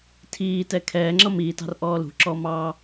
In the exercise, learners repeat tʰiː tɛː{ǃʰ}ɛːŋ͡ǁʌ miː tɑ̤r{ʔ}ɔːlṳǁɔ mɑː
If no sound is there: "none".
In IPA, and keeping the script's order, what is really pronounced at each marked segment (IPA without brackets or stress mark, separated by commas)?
kʰ, ʔ